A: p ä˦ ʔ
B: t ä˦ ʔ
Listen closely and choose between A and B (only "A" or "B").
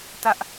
B